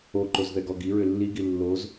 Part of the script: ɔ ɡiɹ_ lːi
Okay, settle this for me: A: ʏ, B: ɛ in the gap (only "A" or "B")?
A